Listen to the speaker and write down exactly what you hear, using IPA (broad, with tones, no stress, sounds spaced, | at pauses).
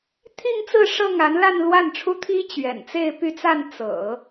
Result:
t̪ʰ i˥˧ ŋ t͡s ɹ̩˥˧ ʂ ɤ˥˩ ŋ a˧˥ n l a˥˧ n l w a˥˩ n ʈ͡ʂʰ u˥ t̪ʰ i˥ t͡ɕ ɥ ɛ̰˨˩ n t͡s e˥˧ ɪ̯ p y˥˧ t͡s a˥˩ n t͡s ɤ̰˨˩˦